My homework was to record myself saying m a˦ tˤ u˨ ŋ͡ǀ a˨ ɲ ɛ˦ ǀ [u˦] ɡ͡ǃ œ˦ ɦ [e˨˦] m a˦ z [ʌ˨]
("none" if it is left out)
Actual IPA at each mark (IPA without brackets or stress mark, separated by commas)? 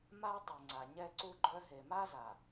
u˦, e˨, a˨